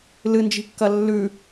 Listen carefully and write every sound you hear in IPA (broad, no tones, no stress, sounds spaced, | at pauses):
l ɨ n d͡ʒ i̤ kː ɐ lː ʉ